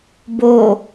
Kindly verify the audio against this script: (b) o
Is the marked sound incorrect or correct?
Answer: correct